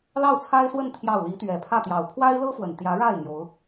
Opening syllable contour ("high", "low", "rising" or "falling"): falling